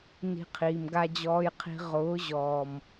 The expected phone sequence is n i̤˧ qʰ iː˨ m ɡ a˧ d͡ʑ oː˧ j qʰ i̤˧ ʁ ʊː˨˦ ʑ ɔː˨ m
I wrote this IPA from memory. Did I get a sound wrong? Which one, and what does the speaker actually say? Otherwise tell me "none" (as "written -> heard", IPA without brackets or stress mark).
oː˧ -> ɔː˧